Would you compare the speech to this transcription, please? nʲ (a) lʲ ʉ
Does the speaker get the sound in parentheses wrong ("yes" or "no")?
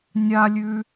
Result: no